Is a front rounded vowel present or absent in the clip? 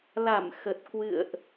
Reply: absent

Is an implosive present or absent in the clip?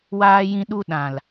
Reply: present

